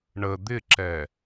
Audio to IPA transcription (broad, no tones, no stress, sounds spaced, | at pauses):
ɳ ə d̪ ɪ ǁ ɛ